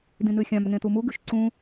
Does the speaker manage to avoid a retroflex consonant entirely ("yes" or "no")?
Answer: yes